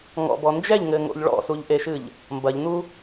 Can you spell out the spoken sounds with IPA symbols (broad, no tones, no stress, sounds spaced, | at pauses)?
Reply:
ŋ ɔ̰ b ɔ n d͡ʒ ɛ ʎ ŋ ɘ ŋ o̰ ʎ ɭ ɔ̰ s u ʎ ʔ e ʃ ɨ ʎ | m b ɐ ʎ n u